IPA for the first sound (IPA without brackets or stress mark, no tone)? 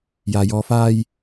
j